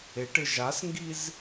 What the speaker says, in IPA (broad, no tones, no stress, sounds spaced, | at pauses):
e ʈ ɪ ʒ a s ŋ ɡ i z